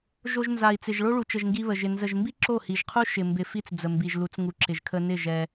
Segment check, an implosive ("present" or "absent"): absent